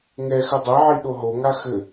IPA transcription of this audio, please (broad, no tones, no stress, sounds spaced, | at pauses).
ŋ ɛ x ɘ dˤ e ʕ i ɗ o ɦ o ŋ a x ɘ